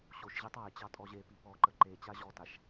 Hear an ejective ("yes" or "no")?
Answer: yes